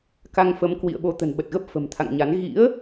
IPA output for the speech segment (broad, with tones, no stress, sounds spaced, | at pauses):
k a˧ ŋ f ə˨˦ m k w ḭ˧˨ ə̯ ɓ o˨˦ t̪ ə̤˨˩ n ɓ ə˨˩ t̚ ɣ ə˦˥ p̚ f ə̤˨˩ m t̪ʰ a̰˧˨ ŋ ɲ a˨˦ n ɣ ḭ˧˥ ə̯